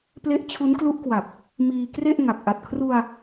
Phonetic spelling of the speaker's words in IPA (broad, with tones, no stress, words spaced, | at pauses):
ple˦˥ʔt͡ɕʰu˦˥nklu˦˥ʔkwa˨˩p̚ | miː˧kre˥˩ʔ ŋa˨˩k̚ ʔa˨˩t̚kʰru˧a̯